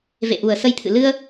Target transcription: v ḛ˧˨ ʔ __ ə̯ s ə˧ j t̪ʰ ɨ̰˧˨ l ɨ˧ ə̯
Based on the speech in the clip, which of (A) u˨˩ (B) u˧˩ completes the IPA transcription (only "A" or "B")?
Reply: A